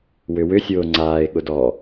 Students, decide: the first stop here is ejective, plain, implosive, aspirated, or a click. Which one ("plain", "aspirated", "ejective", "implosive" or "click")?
click